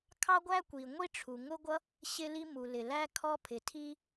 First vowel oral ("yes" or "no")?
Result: yes